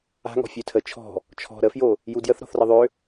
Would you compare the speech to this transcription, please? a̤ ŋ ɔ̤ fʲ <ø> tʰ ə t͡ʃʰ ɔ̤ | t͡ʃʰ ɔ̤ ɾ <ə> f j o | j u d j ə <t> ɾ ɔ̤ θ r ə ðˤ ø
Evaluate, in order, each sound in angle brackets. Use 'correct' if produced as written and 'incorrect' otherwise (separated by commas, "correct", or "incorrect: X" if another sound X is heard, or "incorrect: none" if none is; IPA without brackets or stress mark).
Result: correct, correct, incorrect: θ